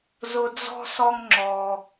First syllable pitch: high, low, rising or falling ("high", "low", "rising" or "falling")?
high